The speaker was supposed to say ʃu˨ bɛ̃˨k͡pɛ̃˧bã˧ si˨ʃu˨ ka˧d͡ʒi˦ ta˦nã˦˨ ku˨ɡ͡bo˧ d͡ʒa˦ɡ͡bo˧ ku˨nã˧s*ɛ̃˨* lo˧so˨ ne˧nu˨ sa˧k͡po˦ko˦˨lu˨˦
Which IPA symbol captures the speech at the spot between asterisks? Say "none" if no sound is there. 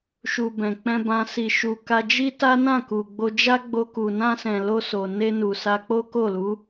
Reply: ɛ̃˨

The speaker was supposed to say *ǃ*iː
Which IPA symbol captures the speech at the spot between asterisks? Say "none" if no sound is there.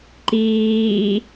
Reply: ǃ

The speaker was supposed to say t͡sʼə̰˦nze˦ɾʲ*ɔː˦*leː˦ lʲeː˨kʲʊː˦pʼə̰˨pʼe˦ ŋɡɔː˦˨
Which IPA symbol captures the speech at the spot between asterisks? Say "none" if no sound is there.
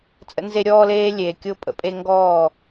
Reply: ɔː˦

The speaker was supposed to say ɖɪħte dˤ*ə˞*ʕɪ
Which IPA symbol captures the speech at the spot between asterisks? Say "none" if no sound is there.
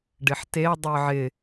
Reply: ə˞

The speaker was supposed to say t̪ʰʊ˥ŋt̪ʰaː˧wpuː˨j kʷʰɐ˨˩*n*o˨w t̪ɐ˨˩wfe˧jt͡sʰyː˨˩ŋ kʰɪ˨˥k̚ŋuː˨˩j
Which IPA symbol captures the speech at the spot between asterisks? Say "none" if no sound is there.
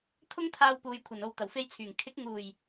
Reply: n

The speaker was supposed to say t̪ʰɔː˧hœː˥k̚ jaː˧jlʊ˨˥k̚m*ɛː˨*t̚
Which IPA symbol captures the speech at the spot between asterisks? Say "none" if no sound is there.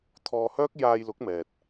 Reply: ɛː˨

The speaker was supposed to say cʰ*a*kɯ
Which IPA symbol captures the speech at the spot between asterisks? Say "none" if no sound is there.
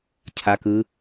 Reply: a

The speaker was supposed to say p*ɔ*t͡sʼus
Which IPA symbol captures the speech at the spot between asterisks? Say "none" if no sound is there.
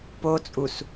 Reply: o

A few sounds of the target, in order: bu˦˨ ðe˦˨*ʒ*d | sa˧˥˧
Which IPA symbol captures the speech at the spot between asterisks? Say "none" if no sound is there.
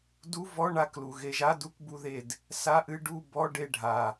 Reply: none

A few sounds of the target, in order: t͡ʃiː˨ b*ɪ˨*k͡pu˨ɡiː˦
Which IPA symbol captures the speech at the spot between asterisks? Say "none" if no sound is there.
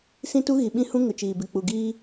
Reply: ɪ˨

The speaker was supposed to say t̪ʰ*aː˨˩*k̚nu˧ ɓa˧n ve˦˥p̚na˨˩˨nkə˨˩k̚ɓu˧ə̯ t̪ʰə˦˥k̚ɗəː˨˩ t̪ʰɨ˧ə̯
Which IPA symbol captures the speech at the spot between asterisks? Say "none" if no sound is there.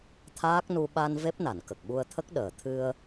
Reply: aː˦˥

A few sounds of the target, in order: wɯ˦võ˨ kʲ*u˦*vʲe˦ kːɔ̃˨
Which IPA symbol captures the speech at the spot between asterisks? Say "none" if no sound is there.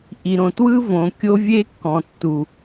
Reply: o˦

